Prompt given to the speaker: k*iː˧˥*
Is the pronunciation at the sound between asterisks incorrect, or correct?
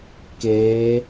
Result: incorrect